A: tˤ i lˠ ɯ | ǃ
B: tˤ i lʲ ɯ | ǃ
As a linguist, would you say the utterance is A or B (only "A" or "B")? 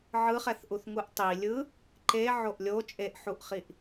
B